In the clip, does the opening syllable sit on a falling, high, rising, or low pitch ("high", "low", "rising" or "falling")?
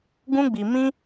high